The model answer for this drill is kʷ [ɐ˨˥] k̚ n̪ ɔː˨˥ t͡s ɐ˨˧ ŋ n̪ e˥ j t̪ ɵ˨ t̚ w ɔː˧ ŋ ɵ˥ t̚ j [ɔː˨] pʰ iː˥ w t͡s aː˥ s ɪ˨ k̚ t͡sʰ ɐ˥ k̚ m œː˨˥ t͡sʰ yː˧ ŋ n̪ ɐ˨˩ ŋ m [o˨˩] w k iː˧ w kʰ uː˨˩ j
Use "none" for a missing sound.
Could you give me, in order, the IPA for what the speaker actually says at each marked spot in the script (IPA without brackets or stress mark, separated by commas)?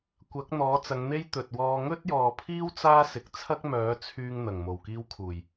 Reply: ɐ˨˥, ɔː˨, o˨˩